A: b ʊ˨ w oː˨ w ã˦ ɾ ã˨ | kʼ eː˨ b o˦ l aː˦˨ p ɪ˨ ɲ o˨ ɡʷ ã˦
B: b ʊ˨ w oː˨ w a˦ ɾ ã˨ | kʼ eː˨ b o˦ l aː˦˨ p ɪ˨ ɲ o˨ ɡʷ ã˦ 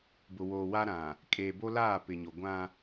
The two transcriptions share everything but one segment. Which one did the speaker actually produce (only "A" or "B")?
B